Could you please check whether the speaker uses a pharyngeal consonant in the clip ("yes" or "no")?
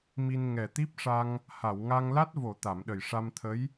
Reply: no